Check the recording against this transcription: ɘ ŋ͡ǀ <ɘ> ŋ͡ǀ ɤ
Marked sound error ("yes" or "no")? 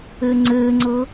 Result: no